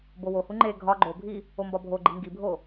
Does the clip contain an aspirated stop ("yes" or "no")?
no